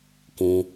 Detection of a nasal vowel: present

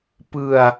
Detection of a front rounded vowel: absent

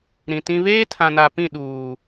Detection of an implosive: present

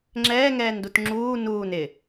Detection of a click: present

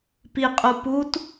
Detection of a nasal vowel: absent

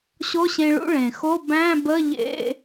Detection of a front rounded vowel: absent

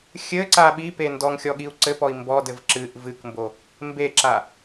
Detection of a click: present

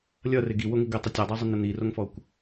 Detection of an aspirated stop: absent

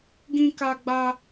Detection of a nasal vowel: present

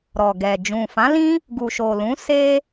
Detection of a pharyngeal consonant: absent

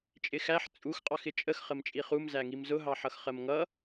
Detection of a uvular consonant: present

